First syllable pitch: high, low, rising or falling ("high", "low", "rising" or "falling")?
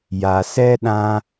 low